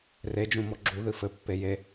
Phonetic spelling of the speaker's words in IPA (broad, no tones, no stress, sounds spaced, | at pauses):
r e d͡ʒ ũ m ɔ ɡ͡ǁ u ð ɨ f ɘ pː e j e